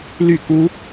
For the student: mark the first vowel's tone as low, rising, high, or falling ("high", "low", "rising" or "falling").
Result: falling